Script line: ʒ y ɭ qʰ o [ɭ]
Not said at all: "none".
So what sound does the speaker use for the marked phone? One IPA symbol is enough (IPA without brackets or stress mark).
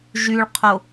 none